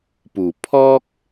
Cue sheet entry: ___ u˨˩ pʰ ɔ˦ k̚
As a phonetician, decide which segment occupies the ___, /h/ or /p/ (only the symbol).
p